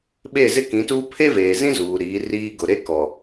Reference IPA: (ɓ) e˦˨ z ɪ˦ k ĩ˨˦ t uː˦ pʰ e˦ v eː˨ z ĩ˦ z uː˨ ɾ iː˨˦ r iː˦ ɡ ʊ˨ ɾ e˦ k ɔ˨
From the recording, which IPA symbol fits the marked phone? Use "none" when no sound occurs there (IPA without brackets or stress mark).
ɓ